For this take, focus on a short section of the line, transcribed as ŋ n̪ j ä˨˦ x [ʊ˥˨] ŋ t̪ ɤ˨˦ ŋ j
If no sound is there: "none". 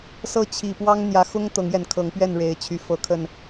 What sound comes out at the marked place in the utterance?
ʊ˦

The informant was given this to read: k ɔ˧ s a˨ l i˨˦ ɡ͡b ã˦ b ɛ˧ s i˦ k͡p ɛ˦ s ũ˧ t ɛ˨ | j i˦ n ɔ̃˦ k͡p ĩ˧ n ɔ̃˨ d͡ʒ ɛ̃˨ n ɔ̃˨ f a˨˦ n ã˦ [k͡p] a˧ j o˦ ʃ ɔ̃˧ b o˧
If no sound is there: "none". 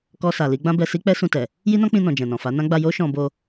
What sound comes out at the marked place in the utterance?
ɡ͡b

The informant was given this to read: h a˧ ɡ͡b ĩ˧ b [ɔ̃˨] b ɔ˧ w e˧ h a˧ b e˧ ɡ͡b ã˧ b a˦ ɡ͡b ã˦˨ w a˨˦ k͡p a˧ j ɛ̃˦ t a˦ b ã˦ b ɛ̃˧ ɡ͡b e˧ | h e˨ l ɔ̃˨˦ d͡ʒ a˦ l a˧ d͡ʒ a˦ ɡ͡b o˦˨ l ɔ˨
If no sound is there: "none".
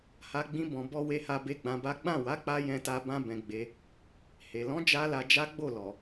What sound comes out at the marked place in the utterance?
ɔ̃˨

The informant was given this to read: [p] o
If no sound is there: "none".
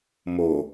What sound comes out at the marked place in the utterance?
m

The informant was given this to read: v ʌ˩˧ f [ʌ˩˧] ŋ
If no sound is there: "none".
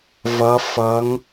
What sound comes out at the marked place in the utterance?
ʌ˩˧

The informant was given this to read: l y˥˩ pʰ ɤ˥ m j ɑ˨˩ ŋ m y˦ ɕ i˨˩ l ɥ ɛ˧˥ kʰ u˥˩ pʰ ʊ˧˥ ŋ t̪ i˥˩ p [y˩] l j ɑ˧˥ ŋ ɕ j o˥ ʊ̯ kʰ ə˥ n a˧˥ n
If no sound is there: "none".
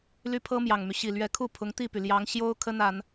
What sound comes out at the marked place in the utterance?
y˩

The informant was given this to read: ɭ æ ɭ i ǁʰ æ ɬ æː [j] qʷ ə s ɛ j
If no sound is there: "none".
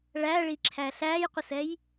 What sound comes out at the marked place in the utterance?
j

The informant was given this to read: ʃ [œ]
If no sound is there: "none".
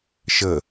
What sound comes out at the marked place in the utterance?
ə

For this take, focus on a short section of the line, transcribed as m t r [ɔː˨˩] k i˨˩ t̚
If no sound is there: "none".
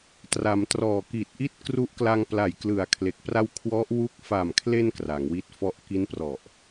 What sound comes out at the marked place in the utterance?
ɔː˨˩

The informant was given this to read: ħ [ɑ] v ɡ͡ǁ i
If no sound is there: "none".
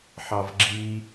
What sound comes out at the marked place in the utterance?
ɑ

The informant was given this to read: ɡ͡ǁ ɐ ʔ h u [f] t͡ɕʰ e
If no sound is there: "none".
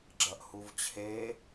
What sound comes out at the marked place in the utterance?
v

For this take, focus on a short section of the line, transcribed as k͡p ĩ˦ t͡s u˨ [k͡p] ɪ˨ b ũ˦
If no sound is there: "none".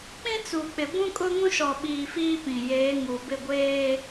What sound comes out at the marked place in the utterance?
k͡p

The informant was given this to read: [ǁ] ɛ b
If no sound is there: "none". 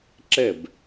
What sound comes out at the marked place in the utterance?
ǁ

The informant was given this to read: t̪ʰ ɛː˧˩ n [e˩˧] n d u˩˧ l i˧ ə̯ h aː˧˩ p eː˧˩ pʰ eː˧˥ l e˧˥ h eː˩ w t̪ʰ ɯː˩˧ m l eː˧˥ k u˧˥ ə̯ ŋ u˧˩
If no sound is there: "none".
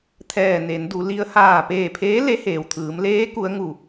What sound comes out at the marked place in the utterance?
e˩˧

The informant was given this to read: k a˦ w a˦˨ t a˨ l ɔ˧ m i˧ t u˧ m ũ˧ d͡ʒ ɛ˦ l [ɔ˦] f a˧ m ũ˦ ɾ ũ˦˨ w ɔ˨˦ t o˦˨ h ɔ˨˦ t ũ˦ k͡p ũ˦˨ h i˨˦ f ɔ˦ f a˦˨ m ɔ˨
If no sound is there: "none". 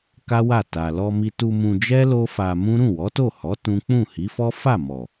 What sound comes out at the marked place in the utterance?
o˦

